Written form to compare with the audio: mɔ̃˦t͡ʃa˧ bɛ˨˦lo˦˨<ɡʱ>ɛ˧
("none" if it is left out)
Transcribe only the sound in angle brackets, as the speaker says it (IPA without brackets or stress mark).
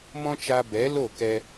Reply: k